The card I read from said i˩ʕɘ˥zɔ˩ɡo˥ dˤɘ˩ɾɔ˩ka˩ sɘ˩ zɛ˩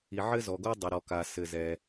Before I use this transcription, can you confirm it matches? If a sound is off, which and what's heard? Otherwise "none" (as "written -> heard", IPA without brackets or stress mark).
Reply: none